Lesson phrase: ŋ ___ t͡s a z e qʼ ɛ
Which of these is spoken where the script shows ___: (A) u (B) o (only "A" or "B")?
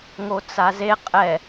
B